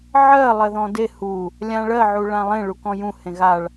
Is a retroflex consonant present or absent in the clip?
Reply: present